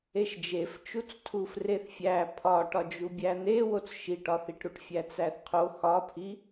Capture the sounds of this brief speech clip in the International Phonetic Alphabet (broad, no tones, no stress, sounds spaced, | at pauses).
e ʃ d͡ʒ e f t͡ʃ u t͡s tʰ u f r e θ fʲ æ pʰ ɒ ʈ ɒ d͡ʒ u bʲ æ n̪ e w o t͡s ʃ i ʈ ɒ θ i ʈ ɾ u ʈ fʲ æ t͡s æ θ qʰ o x ɒ pʰ i